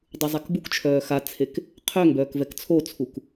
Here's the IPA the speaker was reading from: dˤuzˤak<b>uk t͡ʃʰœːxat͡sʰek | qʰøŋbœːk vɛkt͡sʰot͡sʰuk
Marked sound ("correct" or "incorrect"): correct